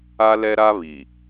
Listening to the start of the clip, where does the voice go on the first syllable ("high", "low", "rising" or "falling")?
high